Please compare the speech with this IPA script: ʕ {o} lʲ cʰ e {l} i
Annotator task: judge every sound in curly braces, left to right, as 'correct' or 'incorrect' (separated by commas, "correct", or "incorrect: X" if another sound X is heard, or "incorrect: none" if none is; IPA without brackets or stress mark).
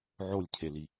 correct, correct